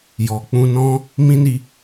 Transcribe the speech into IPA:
j ɔ˨ k͡p ũ˧ n ɔ̃˦ | m ĩ˦ n i˧

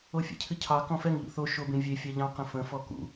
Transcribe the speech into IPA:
o fʲ ḛ cʰ ɨ cʰ ɑ k ɔ̃ f ɛ ŋ ʎ ṵ θ o ʃ o b ẽ vʲ e fʲ ɑ ʎ ɑ̃ q ə̃ f ə̃ f ɔ k ṵ

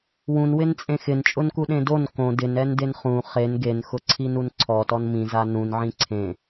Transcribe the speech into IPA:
w ũ n w ɪ n t͡sʼ ẽ x ɪ n t͡ʃʼ ʊ n k u ɗ ẽ d o n k õ d ɪ n ɛ n d e n χ ũ χ e n ɡ e n x ʊ ǀʰ i n u n ǀʰ ɔ t ɔ n m ĩ z a n ũ n ʕ ĩ ǀʰ ẽ

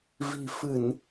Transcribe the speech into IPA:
v i̤˨˩ f ɨ˧˩˨ n

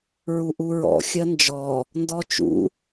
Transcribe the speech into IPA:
ɹ u ʔ u ɹ ɔ̰ xʲ ɜ n d͡ʒ ɔ | n d ɔ t͡ʃ ṵ

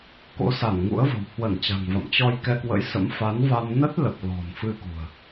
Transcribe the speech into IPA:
k o̰˧˥ s a˧˩ n ŋ ṵ˧˥ ə̯ v ə̤˨˩ w h w ə˧˩ n t͡ɕ a̤˨˩ ŋ v a̰˧˨ m t͡ɕ ɔ˧ j k ɛ˧ k w ə̰˧˥ j s ə̰˧˥ m f a˨˦ n v a˧ m n ə˦˥ t̚ l ə˨˩ p̚ l ɔ̤˨˩ n f ɨ˧ k ṳ˨˩ ə̯

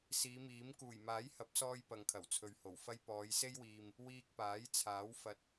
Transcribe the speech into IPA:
s iː˨˧ m iː˨˥ m k uː˨˩ j m aː˨˥ j h ɐ˨˥ p̚ s ɔː˧ j p ɐ˨ ŋ kʰ ɐ˨˩ w t͡sʰ ɵ˨ ɥ h o˨˩ w f ɐ˥ j p ɔː˨˧ j s e˥ j w iː˨ m | w iː˧ k̚ p aː˨˥ j t͡sʰ aː˨˥ w f ɐ˧ t̚

